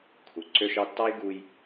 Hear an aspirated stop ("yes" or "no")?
yes